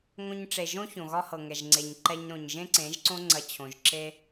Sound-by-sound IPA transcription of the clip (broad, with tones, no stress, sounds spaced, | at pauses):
ŋ õ˧ ɲ ʈ͡ʂ e˨ ʒ õ˦ ç õ˨ ɣ ɒ˦ h ɤ˨ ŋ ɛ˨ ʒ ŋ͡ǀ e˨ ɲ ǃ ɛ˧ ɲ ɾ õ˨ ɲ ʒ ẽ˦ ǀ ẽ˨˦ ʒ ǀ õ˦ ŋ͡ǀ ɐ˧ t͡ɕʰ õ˨ ʒ ǁ e˦